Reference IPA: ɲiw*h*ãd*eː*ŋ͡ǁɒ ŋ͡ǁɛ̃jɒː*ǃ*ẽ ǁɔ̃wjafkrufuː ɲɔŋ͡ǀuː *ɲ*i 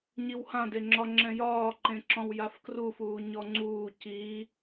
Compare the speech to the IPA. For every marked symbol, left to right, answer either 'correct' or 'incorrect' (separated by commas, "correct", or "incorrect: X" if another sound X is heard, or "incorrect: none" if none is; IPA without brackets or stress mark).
correct, incorrect: e, correct, incorrect: c